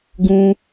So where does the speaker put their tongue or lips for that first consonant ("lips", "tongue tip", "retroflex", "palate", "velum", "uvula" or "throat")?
velum